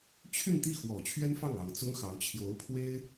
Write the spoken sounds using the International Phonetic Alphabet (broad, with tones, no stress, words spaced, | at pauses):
t͡ɕʰy˥˧nt̪i˥˩xwɔ˨˩ t͡ɕʰɥɛ˥nfɑ˥˩ŋɑ˨˩ŋ t͡sʊ˥ŋxɑ˧˥ʊ̯ t͡ɕʰjo˧˥ʊ̯pʰwe˥ɪ̯